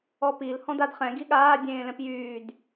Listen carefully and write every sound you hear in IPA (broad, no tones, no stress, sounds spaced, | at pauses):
ɔ p i l h ɔ̃ d a d χ ɛ̃ ɡ i ɠ aː dʲ ẽː l ɛ̃ p j yː d